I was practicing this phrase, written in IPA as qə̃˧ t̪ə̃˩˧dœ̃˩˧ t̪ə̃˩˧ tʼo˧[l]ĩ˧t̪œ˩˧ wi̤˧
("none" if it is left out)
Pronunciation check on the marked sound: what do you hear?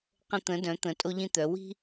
ʎ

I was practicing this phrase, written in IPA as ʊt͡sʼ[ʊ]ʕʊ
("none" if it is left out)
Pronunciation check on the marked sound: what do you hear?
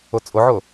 ʊ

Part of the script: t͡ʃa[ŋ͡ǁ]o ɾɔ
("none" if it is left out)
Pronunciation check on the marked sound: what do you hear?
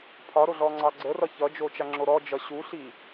ŋ͡ǁ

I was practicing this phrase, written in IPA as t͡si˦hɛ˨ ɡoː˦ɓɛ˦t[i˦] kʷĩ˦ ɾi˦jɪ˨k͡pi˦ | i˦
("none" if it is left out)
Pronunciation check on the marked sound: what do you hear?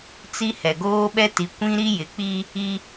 i˨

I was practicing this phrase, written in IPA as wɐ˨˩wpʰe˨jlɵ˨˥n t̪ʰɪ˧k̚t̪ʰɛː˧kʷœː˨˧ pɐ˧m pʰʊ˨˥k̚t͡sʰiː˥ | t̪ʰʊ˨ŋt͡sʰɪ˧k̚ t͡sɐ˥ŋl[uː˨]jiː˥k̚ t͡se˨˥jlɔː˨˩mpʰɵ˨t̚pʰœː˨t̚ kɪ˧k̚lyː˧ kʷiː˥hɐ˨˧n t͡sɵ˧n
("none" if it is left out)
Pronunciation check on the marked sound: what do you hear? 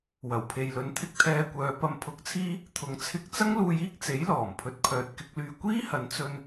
uː˧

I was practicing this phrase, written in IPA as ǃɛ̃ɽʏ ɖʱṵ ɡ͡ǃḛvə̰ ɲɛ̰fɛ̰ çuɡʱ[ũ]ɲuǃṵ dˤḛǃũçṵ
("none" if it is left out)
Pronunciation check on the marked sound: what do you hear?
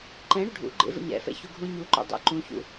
ũ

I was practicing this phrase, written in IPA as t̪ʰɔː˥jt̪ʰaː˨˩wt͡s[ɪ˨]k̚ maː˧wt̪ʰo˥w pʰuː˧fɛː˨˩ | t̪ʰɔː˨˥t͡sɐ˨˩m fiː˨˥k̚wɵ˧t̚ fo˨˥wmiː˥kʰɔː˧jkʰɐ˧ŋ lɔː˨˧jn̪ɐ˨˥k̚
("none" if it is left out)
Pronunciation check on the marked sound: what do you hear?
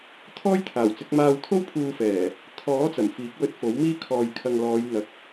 ɪ˨˥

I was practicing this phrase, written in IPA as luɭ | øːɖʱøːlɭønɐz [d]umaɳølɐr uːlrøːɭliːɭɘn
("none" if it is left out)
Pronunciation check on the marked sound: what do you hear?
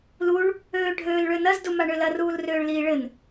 d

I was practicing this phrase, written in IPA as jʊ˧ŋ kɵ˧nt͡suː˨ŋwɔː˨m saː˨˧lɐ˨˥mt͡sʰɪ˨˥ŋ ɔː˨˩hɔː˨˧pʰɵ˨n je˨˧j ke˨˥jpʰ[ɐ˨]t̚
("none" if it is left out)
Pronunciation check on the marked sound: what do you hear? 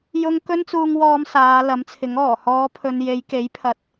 ɐ˨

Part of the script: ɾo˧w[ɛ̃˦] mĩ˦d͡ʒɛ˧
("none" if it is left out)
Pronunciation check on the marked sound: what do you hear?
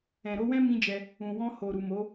ɛ̃˦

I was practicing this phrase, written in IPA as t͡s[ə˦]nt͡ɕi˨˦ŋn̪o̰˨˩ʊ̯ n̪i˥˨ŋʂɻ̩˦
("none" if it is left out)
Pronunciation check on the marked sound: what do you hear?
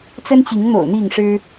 ə˦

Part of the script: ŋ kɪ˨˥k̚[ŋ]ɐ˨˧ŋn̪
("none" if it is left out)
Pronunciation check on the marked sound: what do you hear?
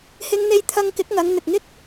ŋ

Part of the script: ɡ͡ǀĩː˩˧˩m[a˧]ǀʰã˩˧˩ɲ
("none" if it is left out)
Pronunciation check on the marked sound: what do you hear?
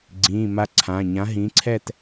a˧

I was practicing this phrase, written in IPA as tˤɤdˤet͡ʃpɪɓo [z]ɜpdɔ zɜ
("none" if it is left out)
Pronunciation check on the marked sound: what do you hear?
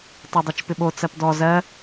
t͡s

